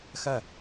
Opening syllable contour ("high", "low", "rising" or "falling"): falling